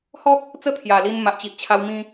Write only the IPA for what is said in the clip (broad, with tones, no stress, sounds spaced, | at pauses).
h ɔ˦ k̚ | t͡s ə˦ t̪ʰ j a˨˩ l i˧ n m a˨ ʔ t͡ɕ i˨ ʔ t͡ɕʰ a˧ w m ĩ˧